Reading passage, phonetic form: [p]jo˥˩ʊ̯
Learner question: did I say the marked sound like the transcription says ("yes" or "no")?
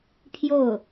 no